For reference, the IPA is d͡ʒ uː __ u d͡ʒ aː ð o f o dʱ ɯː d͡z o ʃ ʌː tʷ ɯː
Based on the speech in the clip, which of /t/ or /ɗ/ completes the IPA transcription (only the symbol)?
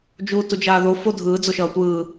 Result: t